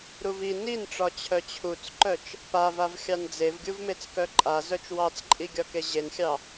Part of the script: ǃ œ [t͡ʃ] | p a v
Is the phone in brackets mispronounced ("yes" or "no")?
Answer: no